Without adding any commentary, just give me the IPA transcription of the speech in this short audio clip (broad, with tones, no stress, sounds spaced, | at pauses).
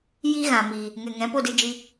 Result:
j i˦ ɣ ã˨ m iː˨ | ŋ ɛ˨ ŋ ɛ̃˨˦ p o˦˨ d ɨ˧ d͡ʒ i˧